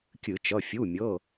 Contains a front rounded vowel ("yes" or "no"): no